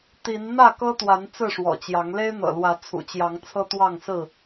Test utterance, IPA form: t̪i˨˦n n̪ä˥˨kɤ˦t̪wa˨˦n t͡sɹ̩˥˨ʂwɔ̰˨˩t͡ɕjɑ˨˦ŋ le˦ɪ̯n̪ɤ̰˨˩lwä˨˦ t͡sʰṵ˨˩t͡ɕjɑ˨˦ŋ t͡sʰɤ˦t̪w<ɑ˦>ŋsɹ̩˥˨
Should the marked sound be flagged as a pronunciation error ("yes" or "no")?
yes